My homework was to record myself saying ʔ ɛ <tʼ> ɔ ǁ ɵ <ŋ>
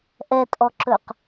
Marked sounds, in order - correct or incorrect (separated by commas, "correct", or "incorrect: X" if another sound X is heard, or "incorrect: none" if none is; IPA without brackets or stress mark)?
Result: correct, incorrect: q